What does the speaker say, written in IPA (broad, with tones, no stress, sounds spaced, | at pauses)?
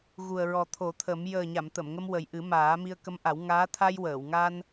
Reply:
ɣ u˨˩ ə̯ ɹ ɔ˨˩ t̪ʰ o˨˩˦ t̪ʰ ə˨˩˦ m j əː˨˩ ɲ a˨˩˨ m t̪ ə˨˩˨ m ŋ ə˧ m w ə˨˩ j ʔ ɨ˨˩˦ m aː˨˩˦ m i˧ ə̯ k ə˧˥ m ʔ a˨˩˦ w ŋ aː˧˥ t̪ʰ a˧ j w əː˨˩˨ w ŋ a˧ n